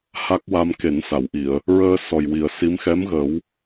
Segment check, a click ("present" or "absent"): absent